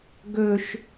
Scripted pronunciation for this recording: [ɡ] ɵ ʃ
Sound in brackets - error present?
no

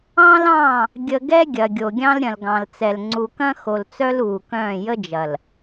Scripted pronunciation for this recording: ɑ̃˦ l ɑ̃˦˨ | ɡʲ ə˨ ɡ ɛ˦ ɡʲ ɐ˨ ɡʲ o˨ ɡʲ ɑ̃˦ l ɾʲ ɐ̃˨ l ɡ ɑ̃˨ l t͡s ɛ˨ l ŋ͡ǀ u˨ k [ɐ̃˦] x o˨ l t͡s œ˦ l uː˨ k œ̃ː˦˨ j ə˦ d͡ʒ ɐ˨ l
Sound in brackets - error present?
no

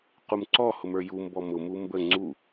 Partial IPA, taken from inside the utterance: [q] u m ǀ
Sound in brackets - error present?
no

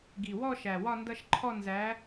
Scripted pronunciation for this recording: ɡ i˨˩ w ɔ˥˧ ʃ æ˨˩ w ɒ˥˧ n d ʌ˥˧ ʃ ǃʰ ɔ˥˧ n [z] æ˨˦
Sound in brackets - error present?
no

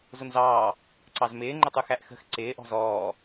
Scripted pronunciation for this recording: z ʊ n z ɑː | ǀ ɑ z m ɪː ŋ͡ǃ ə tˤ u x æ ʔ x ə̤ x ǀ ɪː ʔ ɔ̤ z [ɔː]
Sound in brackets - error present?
no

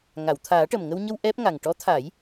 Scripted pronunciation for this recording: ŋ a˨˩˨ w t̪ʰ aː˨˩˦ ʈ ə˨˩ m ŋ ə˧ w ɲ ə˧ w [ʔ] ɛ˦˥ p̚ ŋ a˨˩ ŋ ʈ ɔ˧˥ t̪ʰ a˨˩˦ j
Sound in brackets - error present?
no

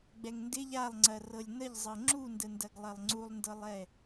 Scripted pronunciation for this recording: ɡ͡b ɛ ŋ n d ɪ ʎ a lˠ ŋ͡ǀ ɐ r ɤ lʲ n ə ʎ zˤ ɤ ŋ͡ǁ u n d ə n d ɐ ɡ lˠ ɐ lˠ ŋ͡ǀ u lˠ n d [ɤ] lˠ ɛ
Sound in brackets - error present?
no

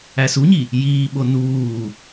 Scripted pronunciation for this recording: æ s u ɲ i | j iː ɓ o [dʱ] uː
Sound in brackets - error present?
yes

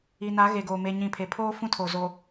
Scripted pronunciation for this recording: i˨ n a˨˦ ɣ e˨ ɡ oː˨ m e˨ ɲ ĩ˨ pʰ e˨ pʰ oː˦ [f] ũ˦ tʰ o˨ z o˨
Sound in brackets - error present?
no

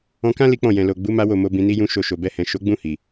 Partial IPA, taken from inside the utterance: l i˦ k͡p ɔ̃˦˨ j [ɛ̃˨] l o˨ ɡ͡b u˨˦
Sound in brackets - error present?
no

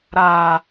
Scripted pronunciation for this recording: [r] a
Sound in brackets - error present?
yes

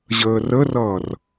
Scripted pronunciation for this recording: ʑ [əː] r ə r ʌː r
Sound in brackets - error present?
no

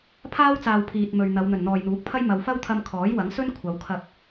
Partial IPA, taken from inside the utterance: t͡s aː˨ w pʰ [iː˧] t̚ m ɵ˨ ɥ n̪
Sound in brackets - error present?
yes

